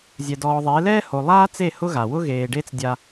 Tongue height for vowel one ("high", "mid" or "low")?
mid